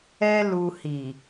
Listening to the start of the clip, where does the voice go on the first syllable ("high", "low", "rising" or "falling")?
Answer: high